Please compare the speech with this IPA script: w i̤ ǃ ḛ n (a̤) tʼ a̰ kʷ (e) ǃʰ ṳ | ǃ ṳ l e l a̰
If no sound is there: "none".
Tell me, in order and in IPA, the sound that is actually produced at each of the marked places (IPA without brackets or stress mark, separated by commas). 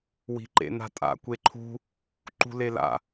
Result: a̤, e